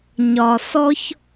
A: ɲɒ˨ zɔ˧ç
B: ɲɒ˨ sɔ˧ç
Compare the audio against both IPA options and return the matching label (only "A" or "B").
B